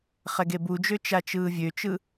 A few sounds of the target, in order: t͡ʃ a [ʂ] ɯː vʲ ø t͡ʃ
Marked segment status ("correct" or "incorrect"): incorrect